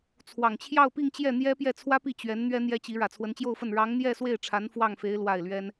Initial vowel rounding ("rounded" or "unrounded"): unrounded